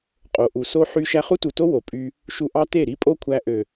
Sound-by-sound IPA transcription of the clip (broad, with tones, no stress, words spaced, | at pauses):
qʼo˨ʔu˨so˦ ħy˧ ʃæ˧χu˦tu˨to˦ wo˨pʼy˧ | ʃu˨ʔɑ˧ te˦˨ɾi˦ pʼo˦kʷʰæ˧ʔø˨